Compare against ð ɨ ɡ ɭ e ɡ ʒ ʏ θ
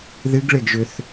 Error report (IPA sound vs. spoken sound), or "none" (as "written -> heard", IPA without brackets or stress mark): none